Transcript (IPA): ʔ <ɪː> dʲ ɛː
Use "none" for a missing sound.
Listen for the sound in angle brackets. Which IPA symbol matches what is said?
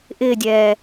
ɪː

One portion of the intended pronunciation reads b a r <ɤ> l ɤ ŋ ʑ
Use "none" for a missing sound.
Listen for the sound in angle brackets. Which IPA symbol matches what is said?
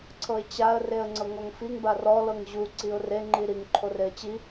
ɔ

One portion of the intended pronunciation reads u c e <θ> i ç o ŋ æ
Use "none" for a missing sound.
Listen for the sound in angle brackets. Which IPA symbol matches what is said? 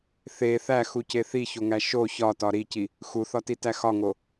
θ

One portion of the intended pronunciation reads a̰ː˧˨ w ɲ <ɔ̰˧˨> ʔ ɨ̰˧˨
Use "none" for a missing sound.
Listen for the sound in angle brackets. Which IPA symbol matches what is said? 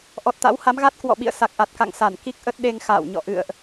ɔ̰˧˨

